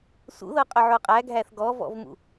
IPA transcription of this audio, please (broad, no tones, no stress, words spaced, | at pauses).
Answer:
sṵðɤqʼʏʕo qʼæɡʱæθ ɡɔvɔ̰vmṵ